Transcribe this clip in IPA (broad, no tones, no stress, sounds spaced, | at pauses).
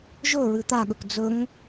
ʒ ɵ ɹ ɨ t̪ a ɠ ɵ k d͡z ɵ ŋ